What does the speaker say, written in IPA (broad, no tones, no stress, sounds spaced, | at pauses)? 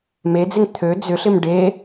m e d͡z ɪ ŋ t̪ʰ ø d͡z ʏ ɬ ɪ m ɖ e